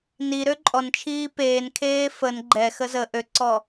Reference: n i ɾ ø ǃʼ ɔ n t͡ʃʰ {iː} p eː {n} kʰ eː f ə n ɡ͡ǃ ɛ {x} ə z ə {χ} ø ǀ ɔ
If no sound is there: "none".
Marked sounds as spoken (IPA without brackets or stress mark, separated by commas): iː, n, x, ʔ